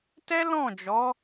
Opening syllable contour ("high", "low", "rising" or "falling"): high